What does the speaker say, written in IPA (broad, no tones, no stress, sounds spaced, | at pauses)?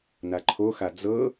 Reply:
n a ǃʰ o x a d͡z ɤ